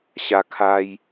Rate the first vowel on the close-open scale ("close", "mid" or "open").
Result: open